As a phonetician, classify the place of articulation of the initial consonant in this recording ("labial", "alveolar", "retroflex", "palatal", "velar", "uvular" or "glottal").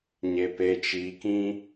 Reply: palatal